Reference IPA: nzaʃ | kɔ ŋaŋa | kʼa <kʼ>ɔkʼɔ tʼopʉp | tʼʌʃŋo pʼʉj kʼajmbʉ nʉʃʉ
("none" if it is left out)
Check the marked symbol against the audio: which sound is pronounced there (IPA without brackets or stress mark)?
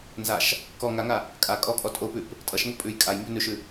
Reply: kʼ